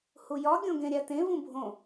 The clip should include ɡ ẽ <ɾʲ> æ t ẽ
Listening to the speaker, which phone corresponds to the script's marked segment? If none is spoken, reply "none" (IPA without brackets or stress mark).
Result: ɾʲ